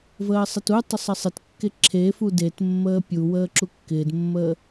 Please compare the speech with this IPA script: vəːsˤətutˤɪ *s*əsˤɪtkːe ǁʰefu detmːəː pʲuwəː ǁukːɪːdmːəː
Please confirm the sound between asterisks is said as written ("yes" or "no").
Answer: no